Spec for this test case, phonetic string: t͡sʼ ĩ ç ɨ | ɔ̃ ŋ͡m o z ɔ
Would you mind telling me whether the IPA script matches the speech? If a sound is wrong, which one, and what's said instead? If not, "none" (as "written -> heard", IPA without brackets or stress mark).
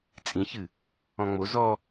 none